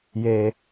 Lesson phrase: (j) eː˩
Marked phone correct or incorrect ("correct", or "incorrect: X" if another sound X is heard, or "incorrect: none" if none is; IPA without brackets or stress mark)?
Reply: correct